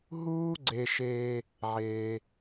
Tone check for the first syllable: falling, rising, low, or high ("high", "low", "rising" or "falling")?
high